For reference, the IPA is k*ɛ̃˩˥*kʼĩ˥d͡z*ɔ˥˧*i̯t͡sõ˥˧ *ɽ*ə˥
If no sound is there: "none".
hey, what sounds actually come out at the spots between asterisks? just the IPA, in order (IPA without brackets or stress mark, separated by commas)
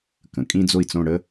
ə̃˩˥, o˥˧, ɽ